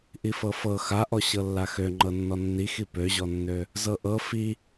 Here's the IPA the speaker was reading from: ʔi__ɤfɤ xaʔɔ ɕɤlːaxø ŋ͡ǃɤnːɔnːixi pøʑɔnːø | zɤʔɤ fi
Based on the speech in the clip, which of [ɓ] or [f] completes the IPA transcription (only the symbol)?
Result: f